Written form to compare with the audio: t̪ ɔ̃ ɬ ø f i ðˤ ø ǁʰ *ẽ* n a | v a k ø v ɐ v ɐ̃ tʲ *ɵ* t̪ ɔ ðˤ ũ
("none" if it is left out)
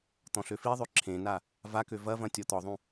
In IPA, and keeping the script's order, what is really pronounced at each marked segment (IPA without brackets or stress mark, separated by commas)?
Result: ẽ, ɔ